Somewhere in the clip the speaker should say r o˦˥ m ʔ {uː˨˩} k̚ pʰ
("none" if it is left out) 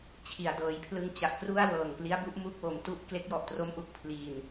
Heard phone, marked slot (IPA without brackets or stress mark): u˨˩